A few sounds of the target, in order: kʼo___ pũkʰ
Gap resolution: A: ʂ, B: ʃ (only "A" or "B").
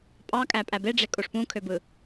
A